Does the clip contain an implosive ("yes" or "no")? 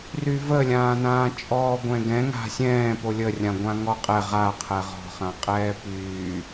no